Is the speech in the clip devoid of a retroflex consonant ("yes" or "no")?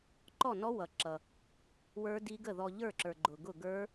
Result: yes